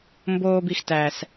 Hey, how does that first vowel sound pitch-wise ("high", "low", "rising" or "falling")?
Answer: high